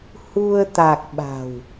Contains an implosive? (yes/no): yes